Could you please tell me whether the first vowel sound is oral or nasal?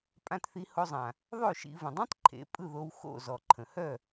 nasal